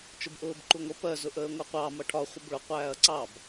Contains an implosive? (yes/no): no